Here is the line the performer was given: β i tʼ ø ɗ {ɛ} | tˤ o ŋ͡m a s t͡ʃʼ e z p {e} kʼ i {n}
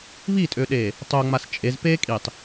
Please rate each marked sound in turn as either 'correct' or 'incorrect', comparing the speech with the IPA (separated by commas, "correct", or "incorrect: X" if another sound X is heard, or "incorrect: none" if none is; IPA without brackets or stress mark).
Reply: incorrect: e, correct, incorrect: tˤ